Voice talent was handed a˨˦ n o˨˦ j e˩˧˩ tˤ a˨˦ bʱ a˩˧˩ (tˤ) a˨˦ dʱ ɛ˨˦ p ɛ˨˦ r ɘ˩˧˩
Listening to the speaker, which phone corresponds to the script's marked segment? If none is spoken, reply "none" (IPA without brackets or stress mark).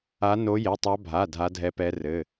dʱ